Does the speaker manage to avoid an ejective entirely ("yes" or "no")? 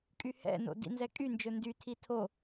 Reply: no